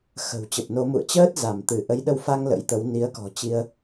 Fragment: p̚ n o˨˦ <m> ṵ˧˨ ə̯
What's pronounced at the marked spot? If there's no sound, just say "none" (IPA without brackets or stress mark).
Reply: m